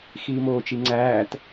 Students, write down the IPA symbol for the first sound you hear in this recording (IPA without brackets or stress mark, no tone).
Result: x